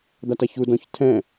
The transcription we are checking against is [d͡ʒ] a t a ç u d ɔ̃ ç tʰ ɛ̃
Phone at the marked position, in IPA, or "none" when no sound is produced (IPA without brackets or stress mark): d̪